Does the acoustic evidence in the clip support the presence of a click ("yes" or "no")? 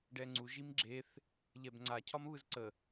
yes